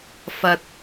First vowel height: low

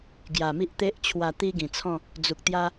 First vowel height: low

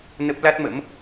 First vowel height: mid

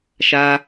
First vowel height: low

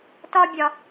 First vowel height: low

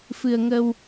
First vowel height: high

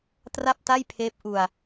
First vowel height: low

